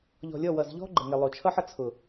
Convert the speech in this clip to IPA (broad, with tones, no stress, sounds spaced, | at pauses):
ʎ ɔ̤˨ lʲ ɔ˦˨ w ʌ˨ z ʎ ɔ̤˦ ɡ͡ǃ ə˨ ŋ ɪ˨ lˠ o˨ t͡ʃʰ ʌ˦ ħ ʌ˨ t͡sʰ ʊ˨